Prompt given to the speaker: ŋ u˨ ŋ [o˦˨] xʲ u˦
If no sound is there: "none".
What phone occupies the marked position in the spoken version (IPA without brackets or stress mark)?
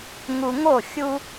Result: o˦˨